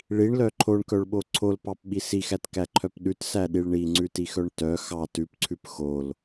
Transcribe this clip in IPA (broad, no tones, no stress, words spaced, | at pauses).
ɭiɳlœ ǃʰoɳkœɭɓo ǀʰolpɑpɓi sixætkæǃʰœp ɗʉtsæɗiɭ ɳiŋ͡ǀʉtixœɳ tœ xɑ tʉpǀʰʉp xol